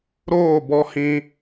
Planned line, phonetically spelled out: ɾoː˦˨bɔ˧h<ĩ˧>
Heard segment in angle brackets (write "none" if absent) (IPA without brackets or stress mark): ĩ˧